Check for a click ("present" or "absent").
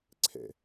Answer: present